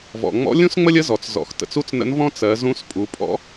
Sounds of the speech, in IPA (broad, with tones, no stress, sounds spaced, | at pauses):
v ɔ̰˩ ŋ͡m ɔ̰˧˥ lʲ ũ˥ s ŋ͡m ə˥ lʲ ə˧˥ z ɔ˩ t͡s z ɔ̰˩˧ x t ə̰˩ t͡s u˥ t͡s n ə̰˧˥ n v ɔ̃˥ t͡s ɜ˩˧ z ũ˧˥ s pʼ u˩˧ pʼ ɔ̰˧˥